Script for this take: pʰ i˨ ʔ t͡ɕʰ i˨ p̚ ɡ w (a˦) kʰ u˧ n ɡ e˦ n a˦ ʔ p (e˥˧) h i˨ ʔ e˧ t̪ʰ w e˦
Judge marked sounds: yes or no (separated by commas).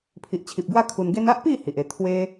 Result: yes, no